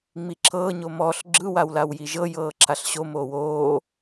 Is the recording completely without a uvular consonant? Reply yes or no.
yes